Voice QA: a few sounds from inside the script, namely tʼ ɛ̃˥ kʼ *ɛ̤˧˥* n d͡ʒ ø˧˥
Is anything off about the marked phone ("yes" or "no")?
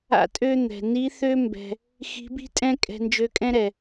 yes